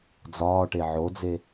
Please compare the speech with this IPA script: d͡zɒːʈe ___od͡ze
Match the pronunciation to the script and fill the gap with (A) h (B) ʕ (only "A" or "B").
B